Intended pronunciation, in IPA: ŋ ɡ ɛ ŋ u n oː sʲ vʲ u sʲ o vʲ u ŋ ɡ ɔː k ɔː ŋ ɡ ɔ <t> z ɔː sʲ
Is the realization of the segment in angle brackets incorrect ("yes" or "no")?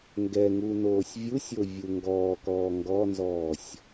yes